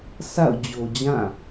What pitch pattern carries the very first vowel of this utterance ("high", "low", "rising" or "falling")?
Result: falling